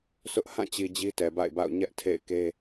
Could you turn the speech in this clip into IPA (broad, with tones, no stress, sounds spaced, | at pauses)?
sʰ ʊ˦ ʔ h ã˦˨ t͡ɕ i˨ d͡ʑ i˦ t ɛ˨ b a̰˦˨ ɪ̯ b a̰˦˨ ʊ̯ ɲ ɛ˦ ʔ tʰ ḛ˦˨ ɪ̯ k e˦